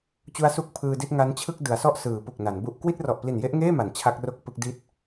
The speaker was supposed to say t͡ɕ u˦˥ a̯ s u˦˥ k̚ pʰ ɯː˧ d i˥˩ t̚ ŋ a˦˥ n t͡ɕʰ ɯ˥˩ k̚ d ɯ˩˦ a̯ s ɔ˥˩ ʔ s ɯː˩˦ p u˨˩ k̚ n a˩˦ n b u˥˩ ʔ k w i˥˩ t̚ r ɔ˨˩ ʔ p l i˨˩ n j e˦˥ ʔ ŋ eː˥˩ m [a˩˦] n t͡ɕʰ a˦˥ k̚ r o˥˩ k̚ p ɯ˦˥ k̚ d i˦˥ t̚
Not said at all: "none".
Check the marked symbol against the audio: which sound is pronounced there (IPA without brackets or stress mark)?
a˩˦